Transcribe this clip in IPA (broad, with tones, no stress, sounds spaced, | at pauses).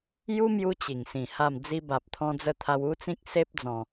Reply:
j u˦ m j u˧ t͡ɕ i˨˩ ŋ s ĩ˨˩ h a˥˧ m d͡z i˧ b a˨ p̚ t̪ʰ ɔ̃˧ d͡z ə˧ t̪ʰ a˧ w u˦ t͡s ĩ˦ k̚ s e˦ p̚ d͡z ɔ̃˨˩